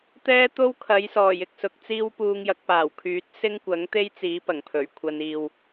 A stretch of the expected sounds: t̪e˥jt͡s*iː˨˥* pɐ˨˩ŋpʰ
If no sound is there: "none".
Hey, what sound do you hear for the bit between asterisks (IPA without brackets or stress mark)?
iː˨˥